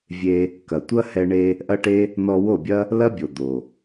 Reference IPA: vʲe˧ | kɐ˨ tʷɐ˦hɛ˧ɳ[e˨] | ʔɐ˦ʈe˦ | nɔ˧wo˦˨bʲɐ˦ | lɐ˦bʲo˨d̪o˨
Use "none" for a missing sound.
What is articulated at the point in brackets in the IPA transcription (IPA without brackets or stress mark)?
e˧